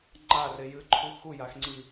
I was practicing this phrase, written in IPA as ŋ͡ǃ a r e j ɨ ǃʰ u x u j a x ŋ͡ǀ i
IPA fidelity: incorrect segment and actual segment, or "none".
none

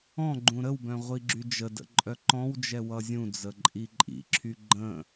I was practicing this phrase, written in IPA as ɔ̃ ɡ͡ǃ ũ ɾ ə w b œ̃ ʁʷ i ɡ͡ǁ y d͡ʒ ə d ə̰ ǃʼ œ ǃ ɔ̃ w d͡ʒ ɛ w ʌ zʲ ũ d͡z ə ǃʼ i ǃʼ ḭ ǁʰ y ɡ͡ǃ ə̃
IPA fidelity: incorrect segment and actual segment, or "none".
none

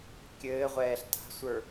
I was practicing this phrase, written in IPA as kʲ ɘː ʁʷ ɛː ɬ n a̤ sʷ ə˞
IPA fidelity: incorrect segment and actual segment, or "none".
n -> t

